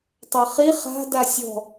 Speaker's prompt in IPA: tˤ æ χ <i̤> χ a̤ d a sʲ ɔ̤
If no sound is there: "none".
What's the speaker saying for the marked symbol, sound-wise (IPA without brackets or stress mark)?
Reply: i